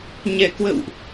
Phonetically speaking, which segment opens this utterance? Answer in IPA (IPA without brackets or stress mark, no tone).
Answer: ɲ